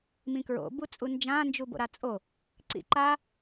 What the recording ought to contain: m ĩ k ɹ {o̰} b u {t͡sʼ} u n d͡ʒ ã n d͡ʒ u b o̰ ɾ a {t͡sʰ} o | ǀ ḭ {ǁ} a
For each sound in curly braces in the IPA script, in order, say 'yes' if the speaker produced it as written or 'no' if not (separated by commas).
yes, yes, no, no